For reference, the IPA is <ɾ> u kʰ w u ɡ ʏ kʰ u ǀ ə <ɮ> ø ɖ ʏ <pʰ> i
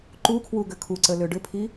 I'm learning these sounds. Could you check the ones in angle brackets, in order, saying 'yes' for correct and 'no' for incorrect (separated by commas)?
no, no, yes